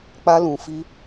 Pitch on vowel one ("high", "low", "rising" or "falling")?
high